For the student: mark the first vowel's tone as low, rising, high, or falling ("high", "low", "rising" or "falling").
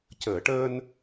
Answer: low